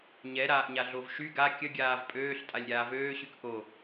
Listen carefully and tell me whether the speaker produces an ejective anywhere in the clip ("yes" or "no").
yes